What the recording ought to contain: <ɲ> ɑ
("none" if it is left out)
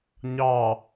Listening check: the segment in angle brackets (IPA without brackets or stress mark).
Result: ɲ